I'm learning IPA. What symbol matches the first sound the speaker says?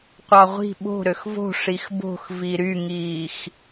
qʷ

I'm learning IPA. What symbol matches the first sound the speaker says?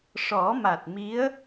ʂ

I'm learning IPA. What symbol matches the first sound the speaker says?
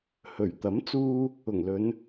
h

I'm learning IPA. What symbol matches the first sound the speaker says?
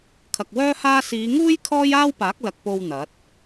kʰ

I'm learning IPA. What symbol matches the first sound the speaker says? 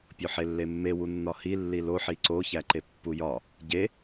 pʲ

